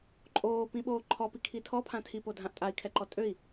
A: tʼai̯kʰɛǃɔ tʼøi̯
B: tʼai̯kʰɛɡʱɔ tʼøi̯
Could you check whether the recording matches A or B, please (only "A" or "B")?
A